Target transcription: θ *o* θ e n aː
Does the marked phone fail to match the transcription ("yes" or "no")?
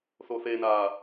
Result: no